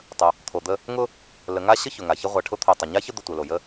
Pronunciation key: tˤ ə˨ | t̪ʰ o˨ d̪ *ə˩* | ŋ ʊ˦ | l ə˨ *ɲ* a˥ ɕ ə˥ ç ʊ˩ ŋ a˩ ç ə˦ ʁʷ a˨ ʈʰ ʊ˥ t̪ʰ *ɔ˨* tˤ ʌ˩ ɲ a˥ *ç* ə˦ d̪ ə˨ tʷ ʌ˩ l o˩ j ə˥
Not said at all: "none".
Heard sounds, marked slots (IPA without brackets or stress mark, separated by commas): ə˦, ŋ, ʊ˨, ç